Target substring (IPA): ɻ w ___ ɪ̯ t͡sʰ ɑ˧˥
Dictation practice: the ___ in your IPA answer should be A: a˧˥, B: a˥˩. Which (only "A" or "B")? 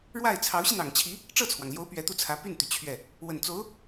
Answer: B